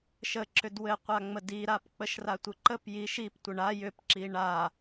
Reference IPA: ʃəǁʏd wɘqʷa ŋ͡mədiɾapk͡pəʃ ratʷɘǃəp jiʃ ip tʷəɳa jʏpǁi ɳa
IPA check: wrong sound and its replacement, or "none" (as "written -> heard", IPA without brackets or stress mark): none